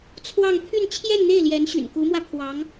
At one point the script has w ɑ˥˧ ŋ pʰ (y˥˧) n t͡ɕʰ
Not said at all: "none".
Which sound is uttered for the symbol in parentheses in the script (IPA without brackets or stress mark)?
y˥˧